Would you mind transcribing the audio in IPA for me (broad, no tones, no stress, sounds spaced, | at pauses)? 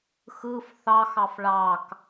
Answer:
x ɯ f θ ɑ x ɑ f ɭ ɑ k